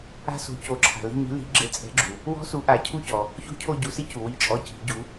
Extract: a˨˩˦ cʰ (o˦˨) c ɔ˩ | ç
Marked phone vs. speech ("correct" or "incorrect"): incorrect